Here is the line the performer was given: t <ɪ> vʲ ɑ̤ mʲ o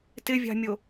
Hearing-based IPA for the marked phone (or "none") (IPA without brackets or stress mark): ɪ